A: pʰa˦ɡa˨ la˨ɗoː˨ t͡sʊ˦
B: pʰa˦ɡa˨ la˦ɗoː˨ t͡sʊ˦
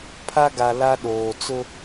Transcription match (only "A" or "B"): B